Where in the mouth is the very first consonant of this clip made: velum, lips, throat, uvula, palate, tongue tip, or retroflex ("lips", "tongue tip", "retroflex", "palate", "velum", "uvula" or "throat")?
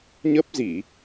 palate